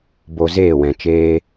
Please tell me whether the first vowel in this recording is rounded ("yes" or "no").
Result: yes